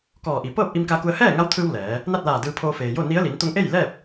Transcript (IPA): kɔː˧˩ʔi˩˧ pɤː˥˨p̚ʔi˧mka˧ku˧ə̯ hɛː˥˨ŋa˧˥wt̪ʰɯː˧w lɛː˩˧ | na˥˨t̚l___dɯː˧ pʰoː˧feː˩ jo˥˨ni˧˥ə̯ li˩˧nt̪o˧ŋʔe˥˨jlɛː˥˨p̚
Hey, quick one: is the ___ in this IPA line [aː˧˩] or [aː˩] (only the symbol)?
aː˧˩